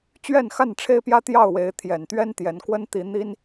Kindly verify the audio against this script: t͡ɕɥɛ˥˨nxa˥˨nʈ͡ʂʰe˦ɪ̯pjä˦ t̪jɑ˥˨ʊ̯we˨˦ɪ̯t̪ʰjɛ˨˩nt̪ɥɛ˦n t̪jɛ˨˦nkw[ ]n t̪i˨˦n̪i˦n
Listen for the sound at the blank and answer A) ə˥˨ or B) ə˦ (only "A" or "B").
B